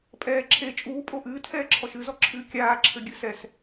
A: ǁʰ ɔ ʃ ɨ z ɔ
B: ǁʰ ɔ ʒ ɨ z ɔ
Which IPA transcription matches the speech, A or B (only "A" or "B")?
A